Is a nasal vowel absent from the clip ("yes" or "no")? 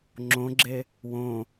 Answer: no